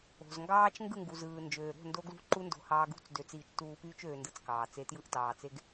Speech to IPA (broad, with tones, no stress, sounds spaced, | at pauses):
o̤˨ z ŋ ɡ ɑː˦ t͡ʃ ŋ ɡ ɯ˦˨ ŋ ɡ u˨ z ɯː˨ n d͡ʒ øː˨ ɾ o̤˦˨ n d o˧ ɡ l ṳ˦ ǃ u˦ n d o̤˧ h ɑː˧ ɡ ṳ˦˨ t͡s d ø˧ t͡s iː˧ t͡ʃ t uː˧ p yː˦ t͡ʃ øː˧ n d ɯ˧ t͡s k ɑː˨ t͡s e˧ t j ɯ˧ ʔ t ɑː˨ t͡s e˧ ɡ